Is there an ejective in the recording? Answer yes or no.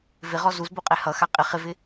yes